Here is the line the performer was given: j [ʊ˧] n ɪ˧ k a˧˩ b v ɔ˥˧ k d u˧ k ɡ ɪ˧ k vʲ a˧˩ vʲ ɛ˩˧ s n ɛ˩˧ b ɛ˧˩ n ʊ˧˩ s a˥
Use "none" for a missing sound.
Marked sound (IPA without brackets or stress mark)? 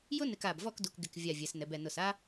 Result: ʊ˥